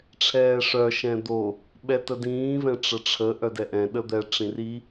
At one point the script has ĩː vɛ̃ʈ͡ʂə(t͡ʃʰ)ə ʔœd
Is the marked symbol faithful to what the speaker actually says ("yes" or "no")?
no